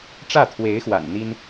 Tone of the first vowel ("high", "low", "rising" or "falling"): falling